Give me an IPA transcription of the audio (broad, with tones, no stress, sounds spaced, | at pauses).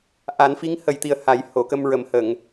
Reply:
ʔ a˨˩˦ n f i˧˥ ŋ h ə˨˩ j t̪ i˨˩ ə̯ h a˨˩˦ j h o˨˩˨ k ə˧ m ɹ ə˨˩˦ m h ə˨˩˨ ŋ